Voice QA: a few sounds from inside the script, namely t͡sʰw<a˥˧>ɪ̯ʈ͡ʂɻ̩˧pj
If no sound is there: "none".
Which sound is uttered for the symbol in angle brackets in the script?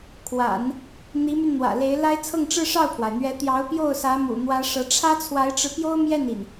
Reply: a˧˥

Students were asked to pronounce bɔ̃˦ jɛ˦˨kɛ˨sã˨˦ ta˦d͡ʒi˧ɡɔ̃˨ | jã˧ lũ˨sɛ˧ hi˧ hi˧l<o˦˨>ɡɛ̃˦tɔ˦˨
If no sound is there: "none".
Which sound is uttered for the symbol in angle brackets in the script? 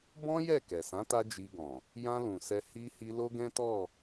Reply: o˦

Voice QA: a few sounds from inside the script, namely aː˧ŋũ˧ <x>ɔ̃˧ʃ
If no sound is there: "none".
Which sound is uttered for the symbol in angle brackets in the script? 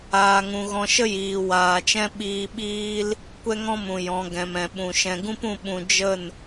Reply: ɣ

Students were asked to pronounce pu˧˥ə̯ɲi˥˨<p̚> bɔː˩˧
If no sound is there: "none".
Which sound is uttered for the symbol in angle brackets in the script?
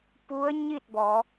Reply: t̚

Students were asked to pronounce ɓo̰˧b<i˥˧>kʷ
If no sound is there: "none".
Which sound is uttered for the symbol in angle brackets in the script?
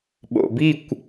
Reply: i˥˧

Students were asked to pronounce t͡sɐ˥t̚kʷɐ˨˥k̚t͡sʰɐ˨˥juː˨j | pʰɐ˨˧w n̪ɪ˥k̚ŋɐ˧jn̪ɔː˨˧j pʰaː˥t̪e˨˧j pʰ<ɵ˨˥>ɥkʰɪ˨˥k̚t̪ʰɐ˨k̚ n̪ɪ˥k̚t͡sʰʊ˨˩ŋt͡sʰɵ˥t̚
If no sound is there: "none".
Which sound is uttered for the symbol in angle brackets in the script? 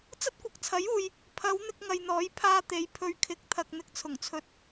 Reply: ɵ˧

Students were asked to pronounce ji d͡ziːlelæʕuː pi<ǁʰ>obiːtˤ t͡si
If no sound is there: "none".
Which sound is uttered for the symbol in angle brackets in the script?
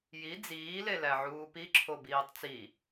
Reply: ǁʰ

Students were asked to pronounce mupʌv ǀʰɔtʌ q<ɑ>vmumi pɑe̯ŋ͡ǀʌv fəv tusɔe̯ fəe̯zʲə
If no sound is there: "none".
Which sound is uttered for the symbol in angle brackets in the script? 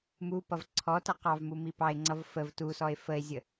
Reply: ɑ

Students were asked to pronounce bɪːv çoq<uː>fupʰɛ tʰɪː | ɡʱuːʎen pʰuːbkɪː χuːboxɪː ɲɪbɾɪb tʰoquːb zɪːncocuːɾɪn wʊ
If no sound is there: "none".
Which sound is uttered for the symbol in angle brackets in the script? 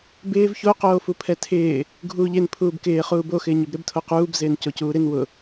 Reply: oː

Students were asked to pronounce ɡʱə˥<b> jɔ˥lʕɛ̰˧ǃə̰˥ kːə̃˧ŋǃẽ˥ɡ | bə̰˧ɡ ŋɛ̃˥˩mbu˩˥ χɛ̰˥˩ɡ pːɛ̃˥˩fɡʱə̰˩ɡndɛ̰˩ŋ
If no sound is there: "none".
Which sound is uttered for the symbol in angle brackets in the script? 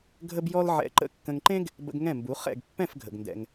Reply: b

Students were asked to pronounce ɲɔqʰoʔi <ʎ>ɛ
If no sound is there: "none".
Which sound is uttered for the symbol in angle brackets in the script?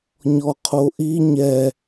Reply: ɲ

